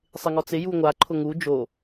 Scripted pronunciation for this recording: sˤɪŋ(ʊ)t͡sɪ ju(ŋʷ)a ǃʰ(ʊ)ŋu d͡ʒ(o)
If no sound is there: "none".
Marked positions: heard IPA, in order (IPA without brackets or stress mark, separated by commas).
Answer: ɔ, ŋʷ, ʊ, o